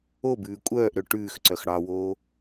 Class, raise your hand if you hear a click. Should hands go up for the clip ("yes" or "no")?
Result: yes